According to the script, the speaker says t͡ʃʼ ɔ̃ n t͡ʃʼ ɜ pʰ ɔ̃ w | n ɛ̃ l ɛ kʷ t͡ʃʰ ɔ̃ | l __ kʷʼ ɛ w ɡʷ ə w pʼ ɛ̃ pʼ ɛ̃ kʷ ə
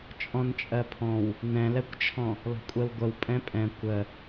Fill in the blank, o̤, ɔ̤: ɔ̤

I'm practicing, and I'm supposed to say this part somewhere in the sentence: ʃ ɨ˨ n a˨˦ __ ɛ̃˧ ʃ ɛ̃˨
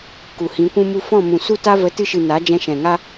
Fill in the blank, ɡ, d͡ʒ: d͡ʒ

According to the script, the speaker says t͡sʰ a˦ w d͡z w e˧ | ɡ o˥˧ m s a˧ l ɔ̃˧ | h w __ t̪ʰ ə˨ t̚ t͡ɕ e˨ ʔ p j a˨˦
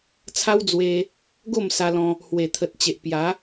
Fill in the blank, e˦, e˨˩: e˨˩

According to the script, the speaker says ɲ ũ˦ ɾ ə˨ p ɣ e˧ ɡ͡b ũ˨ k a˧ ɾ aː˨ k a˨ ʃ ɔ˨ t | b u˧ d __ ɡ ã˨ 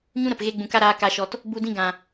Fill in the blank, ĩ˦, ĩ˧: ĩ˧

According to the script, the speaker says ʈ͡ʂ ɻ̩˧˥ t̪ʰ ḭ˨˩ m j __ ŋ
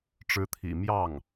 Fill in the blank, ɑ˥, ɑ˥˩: ɑ˥˩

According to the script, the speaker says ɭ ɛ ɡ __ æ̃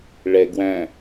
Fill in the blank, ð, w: w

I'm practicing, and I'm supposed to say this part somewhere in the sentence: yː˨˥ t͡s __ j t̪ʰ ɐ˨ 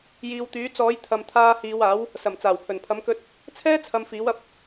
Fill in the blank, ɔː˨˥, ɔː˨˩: ɔː˨˥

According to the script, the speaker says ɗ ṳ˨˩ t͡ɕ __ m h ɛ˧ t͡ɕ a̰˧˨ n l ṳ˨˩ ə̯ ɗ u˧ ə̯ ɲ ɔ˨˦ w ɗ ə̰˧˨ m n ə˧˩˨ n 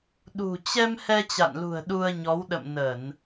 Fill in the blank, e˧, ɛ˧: ɛ˧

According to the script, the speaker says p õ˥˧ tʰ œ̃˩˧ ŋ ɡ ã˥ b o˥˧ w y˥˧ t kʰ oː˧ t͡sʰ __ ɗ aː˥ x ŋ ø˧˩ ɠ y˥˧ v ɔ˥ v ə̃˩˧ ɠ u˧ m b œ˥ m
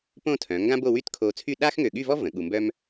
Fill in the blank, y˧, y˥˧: y˥˧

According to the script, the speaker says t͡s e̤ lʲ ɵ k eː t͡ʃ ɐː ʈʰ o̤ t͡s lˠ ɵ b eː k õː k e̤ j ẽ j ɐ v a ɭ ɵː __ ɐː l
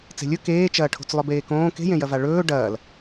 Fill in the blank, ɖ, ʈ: ɖ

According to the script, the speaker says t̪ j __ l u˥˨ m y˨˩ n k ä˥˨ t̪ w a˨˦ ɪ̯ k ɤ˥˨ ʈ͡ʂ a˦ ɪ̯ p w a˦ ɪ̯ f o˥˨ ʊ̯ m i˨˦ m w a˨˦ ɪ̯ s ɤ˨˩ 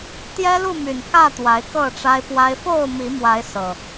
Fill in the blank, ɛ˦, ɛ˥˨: ɛ˦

